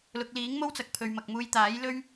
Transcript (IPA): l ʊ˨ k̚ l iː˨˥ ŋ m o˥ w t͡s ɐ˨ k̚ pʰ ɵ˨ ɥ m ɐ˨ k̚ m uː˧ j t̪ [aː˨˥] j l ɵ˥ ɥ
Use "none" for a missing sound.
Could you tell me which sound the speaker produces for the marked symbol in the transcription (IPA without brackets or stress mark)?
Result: aː˨˥